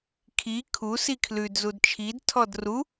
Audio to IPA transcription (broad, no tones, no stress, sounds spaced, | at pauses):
kʰ i kʰ u s i kʰ l ʉ d z u d t͡ʃʰ i d tʰ ɔ d r u